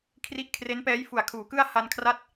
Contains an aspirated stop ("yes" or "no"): yes